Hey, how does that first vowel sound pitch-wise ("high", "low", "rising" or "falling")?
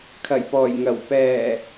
low